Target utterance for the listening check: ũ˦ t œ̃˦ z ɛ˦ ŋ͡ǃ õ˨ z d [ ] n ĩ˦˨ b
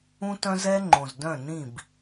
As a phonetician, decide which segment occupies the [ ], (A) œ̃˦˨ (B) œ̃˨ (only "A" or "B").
A